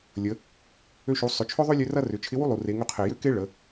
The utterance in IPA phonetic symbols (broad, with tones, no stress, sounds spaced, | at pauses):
lʲ ə˩˧ | ø˧ ʃ u˩˧ sˤ ʏ˩˧ t͡ʃʰ ʏ˥ ðˤ ø˥ lʲ ø˥ r ɐ˥ r ʏ˩˧ t͡ʃʰ ɪ˧˥ w u˥ lˠ u˩ r e˩˧ ŋ ʏ˧ qʰ e˩ j ø˥ k e˥ ɭ ə˩˧